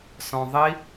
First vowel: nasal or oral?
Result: nasal